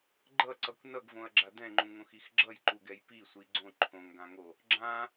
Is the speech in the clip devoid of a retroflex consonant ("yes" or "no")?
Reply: yes